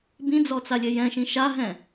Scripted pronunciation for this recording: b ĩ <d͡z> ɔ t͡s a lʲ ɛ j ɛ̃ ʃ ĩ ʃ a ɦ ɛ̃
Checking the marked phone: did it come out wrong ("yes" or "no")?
no